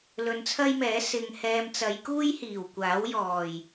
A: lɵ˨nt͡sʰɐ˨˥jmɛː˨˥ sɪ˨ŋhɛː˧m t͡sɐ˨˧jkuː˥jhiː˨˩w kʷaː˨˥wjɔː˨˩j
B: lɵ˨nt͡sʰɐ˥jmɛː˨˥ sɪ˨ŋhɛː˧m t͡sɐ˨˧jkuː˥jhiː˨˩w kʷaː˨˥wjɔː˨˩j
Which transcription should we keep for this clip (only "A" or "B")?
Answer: B